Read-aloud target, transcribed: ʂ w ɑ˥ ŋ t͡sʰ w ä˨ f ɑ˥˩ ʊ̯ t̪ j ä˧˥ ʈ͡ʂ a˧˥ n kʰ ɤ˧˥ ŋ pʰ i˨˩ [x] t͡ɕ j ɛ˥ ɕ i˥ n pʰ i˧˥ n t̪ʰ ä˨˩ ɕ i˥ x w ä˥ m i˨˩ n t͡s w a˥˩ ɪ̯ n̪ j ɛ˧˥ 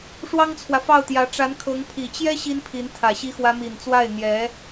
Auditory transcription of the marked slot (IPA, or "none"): none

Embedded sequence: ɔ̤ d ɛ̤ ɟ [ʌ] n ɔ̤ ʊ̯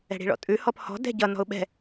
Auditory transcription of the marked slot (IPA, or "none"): ʌ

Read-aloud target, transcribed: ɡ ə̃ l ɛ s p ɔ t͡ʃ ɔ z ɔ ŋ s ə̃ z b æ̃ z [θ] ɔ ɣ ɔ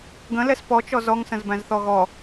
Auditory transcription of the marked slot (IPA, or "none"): θ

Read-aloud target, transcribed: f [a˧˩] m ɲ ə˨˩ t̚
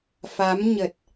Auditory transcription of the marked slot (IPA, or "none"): a˨˦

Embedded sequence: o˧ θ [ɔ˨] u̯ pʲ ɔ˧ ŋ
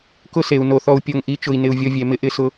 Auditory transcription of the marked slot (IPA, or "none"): ɔ˧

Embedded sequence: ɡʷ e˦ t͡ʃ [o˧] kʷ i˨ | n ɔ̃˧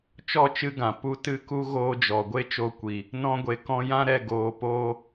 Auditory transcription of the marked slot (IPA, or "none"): o˧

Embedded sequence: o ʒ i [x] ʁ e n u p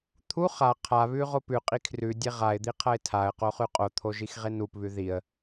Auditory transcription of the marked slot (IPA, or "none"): x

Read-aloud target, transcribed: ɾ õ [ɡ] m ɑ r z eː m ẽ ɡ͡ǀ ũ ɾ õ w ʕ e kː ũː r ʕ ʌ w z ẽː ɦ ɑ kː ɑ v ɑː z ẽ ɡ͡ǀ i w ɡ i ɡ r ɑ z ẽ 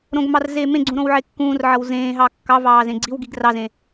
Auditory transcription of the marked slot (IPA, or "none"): ɡ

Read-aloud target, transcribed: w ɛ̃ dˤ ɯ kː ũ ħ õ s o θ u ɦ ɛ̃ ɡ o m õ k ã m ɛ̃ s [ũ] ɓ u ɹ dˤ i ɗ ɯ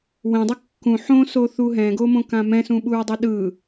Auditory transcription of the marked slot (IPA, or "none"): ũ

